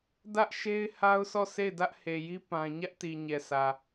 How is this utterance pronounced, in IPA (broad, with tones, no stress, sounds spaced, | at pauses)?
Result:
d ä˦ ʔ ʃ e˦ ɪ̯ h a˦ ʊ̯ sʰ ɔ˦˨ sʰ e˦˨ ɪ̯ d ä˦ ʔ h e˨ j i˦ p ã˦ ɲ ä˦ ʔ t i˨ ɲ ɛ˨ s ä˨